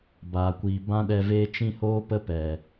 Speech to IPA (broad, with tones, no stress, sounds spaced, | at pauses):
b aː˨ kʷ iː˨ b ã˦ ɗ ɛ˧ v eː˦ t͡ʃ ĩ˧ h oː˧ p ə˧ p ɛ˨